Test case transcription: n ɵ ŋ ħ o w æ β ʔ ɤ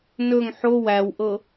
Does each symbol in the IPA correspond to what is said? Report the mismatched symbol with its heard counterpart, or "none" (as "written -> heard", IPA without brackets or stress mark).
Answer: β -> w